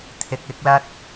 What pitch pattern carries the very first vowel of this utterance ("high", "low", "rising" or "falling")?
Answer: low